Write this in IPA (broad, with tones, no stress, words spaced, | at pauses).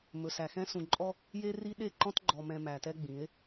mɵ˨sæ˨xɛ̃˦ sũ˨ǃʼɔ˦ | je˦ri˦ ɗe˦˨ǃɔ̃˦t ɡ͡ǃɔ˨mɛ̃˨ mæ˨tɛ˦ɡ͡bĩ˨˦e̯